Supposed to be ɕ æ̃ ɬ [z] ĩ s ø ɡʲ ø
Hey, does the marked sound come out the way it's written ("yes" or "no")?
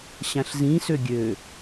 yes